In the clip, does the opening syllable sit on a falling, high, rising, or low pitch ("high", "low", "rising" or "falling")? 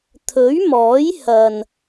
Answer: rising